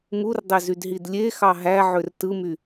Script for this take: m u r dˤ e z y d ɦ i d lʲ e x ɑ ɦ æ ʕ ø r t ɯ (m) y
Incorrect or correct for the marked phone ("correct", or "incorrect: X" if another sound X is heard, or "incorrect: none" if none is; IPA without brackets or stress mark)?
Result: correct